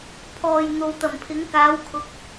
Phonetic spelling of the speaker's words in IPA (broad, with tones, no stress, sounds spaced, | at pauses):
pʰ ɔː˨ j n̪ o˨ w t̪ ɐ˨˩ m pʰ ɪ˨˥ ŋ k aː˨˥ w kʰ ʊ˨˥ k̚